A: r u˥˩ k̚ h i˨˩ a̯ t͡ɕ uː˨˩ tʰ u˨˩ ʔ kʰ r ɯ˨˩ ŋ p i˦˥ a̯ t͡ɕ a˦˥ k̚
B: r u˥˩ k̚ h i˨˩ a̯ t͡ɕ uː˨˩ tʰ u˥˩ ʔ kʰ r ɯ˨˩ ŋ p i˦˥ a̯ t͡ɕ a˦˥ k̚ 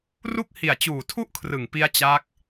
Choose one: B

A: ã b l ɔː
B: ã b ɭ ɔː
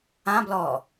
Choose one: A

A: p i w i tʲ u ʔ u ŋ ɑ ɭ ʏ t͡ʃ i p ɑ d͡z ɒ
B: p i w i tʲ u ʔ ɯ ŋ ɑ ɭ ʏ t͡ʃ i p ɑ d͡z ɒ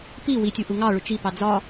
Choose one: A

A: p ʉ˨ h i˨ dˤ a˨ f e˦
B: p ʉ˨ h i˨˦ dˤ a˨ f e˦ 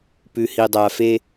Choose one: A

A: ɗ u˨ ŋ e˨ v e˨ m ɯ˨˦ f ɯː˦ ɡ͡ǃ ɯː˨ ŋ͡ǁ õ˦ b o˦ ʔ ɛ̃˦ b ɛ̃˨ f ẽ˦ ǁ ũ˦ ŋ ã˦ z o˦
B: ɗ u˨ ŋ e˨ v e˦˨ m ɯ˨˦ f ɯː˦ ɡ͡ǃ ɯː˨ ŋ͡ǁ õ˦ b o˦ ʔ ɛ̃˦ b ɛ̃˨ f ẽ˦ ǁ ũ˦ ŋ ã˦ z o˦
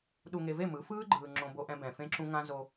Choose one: B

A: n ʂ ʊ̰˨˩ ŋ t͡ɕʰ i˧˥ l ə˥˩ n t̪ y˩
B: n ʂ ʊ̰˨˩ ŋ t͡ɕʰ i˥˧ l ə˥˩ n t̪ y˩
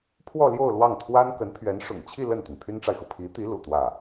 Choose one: B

